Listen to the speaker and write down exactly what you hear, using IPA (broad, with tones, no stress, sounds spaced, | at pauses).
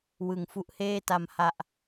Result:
w ɯ˨˩ ŋ f u˦˥ ʔ h eː˥˩ t a˧ m h a˨˩ ʔ